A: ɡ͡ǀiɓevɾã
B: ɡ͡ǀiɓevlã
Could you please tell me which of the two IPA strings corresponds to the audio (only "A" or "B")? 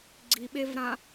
A